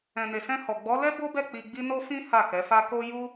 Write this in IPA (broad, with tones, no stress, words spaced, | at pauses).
ɛ̃˨ne˨sɛ̃˧hɔ˨ ɡ͡bɔ˨˦lɛ˦ bo˦bɛ˦˨ k͡pi˧ɡ͡bi˦ no˦fĩ˦ ha˦˨kɛ˨˦fa˦ ko˦ ju˦